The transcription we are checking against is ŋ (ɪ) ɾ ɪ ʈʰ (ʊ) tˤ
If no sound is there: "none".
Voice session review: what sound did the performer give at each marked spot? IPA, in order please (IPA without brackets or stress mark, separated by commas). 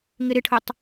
ɪ, ʊ